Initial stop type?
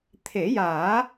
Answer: aspirated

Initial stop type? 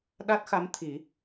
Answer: implosive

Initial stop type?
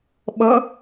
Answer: implosive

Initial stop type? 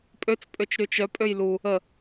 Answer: ejective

